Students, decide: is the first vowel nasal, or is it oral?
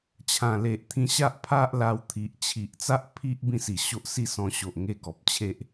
nasal